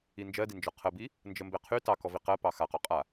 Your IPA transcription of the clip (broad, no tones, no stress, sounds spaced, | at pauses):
i n d͡ʒ ɜ d i n d͡ʒ ɔ qʰ ə b i | n d͡ʒ ə m b e qʰ y t ɑ k ɔ v i q ɜ p ɑ x a q ɔ qʼ a